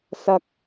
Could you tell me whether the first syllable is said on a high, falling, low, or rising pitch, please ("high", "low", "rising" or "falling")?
high